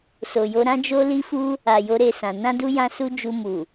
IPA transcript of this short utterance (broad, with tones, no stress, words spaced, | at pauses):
so˨jo˧ɾã˦ d͡ʒo˦li˦fu˦ | a˨jo˨˦ɾe˧sã˨ nã˧du˧ jã˧su˧ d͡ʒu˧ mu˨